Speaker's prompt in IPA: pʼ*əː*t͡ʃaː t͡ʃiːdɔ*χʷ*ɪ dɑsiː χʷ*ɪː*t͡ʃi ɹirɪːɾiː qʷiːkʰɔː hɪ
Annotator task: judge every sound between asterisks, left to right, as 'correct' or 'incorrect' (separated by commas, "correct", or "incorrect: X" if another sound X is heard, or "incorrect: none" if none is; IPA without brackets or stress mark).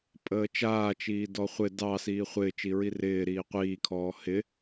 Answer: correct, correct, correct